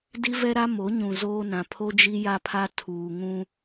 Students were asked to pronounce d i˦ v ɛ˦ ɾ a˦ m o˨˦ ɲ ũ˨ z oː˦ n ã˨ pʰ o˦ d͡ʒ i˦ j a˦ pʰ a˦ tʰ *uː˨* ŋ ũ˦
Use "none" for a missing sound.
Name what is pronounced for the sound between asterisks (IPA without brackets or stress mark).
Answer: uː˨